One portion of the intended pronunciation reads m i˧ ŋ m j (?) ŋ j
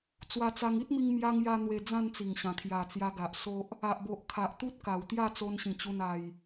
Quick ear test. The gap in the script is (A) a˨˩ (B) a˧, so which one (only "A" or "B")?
B